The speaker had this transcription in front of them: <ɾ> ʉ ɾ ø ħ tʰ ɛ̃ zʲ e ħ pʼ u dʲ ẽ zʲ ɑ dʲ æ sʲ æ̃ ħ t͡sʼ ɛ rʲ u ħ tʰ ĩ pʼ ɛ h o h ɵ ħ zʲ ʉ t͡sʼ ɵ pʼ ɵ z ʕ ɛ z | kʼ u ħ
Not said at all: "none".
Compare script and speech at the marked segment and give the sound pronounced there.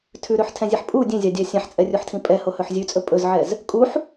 tʰ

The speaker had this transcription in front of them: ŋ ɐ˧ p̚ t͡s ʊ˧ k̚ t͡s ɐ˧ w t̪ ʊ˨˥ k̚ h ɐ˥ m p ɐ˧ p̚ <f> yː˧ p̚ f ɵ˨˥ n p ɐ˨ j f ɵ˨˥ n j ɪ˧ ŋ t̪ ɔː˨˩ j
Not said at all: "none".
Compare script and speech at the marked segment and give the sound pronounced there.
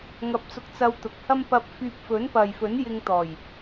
f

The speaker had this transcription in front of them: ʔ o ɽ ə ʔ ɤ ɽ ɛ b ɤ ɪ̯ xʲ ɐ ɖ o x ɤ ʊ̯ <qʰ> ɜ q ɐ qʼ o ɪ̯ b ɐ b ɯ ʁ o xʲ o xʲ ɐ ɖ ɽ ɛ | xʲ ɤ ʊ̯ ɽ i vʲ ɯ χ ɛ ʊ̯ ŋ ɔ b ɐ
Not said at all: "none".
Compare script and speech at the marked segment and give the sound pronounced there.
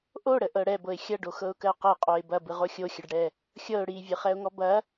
k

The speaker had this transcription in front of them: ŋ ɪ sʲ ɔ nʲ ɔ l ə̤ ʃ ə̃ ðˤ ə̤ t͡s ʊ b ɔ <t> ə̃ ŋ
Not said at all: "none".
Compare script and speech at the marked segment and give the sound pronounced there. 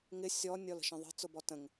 t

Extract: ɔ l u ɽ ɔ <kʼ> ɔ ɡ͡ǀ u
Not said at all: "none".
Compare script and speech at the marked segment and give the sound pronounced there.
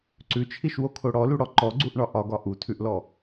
ǃ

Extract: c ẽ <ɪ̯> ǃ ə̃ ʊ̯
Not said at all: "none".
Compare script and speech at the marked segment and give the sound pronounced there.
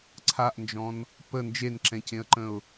ə̯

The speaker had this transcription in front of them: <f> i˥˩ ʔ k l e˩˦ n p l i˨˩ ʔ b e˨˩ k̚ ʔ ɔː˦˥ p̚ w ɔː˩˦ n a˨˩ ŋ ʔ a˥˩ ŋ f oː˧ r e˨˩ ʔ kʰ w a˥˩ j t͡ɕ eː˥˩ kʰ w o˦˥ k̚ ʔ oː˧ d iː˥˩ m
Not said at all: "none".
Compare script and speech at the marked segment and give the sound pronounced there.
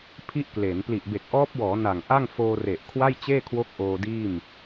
pʰ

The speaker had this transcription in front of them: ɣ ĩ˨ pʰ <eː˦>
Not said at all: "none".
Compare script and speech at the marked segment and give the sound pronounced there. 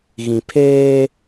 eː˦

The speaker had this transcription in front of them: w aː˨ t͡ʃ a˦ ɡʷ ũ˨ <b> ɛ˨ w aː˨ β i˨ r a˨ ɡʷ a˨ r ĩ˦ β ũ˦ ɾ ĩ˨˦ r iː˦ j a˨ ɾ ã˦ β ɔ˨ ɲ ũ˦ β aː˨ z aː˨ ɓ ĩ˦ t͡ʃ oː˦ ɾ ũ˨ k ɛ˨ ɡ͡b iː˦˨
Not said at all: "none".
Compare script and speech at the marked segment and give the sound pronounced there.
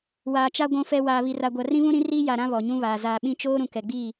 f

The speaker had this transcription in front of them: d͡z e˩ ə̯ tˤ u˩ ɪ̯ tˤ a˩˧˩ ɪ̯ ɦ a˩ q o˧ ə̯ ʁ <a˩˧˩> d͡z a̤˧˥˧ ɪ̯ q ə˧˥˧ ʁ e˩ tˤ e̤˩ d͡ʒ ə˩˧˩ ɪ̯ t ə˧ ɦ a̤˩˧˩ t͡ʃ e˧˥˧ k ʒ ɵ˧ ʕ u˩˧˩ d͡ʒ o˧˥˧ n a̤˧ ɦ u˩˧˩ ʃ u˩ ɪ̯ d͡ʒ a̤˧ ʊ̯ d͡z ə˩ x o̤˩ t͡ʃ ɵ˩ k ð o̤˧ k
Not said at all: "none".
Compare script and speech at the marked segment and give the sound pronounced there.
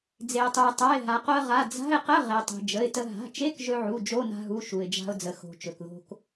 a˩˧˩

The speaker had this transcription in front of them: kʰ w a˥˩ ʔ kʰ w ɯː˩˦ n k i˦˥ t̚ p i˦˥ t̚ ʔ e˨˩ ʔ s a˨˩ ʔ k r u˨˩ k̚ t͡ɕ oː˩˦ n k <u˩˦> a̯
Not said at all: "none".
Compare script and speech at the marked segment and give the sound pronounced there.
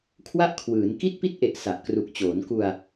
u˧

